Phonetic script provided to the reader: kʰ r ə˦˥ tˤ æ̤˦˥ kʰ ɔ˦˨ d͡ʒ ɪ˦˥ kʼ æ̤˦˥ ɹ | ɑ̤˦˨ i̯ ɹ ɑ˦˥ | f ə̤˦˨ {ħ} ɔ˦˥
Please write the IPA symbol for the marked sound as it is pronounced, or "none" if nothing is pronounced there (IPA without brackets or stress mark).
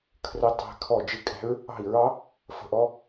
ʔ